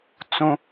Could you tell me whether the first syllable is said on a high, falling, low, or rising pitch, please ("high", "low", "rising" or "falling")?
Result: high